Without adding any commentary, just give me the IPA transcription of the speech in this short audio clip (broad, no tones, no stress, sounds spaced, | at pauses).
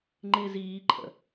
ŋ͡ǃ ɪː z iː ǃʰ ə̰